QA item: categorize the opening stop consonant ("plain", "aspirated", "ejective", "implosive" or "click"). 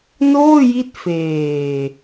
plain